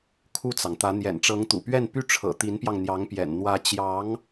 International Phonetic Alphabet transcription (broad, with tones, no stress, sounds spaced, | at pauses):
kʰ u˥˩ t͡s ɑ˩ ŋ t̪ ä˧˥ n̪ j ɛ̰˨˩ n ʈ͡ʂ ɤ˧˥ ŋ t̪ ṵ˨˩ p ɥ ɛ˥˧ n p y˥˩ ʈ͡ʂʰ ɤ̰˨˩ t̪ i˧˥ n p j ɑ˧ ŋ n̪ j ɑ˧˥ ŋ p j ɛ̰˨˩ n n̪ w ä˧˥ t͡ɕ j ɑ˧˥ ŋ